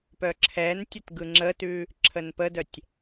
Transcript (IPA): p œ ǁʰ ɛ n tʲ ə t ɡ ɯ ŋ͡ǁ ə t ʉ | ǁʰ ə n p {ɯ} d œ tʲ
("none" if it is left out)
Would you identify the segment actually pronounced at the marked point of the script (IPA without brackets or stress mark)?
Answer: ə